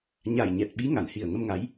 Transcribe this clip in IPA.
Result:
ɲ a˨˩ j ɲ ɛ˨˩ t̚ ɓ i˨˦ ŋ a˧˩ n h i˨˩ ə̯ ŋ ə˧ m ŋ a˨˦ j

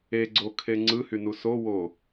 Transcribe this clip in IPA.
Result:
e ɡ͡ǀ o kʰ e ŋ͡ǀ ɯ h y n u s o w o

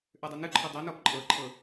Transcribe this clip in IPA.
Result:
ʔ ø dˤ ø n ɯ ǃʰ ɔ dˤ ø n ɔ p ǃʼ ɤ ǃʰ ɤ

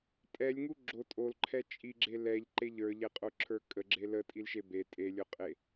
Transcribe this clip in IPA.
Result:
tʼ ɛ lʲ ŋ u ɡ͡ǁ o tʼ o l ǃʰ ɛ t͡ʃʼ i ɡ͡ǁ e l ɛ ʎ ǃ e ʎ ə˞ ʎ ɛ qʼ o ǁʰ ə˞ kʼ ə ɡ͡ǁ e l ə tʼ i l ʃ e b e tʼ e lʲ o qʼ e

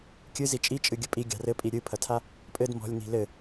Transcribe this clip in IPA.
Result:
kʲ ɨ z i t͡ʃʼ i t͡ʃʼ ɨ ɡʲ ɘ pʼ i ɡʲ a̤ r ɘ pʼ i ɾʲ ɨ pʰ ɐ tʰ a | pʼ ɘ d m ɔ̤ lʲ n i̤ l ɘ

